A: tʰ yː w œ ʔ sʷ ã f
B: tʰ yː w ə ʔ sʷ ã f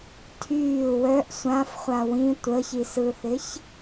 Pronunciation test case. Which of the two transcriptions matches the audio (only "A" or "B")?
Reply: A